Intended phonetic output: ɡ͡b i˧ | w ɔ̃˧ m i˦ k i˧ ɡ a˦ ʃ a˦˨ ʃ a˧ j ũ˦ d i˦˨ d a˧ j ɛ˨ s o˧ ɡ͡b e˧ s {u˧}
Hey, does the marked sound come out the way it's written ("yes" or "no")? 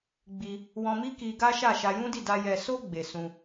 no